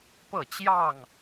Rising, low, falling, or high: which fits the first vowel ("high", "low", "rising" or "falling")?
falling